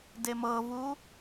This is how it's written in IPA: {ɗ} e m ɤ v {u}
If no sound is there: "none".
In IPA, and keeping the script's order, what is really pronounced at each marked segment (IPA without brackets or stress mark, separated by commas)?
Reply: d, u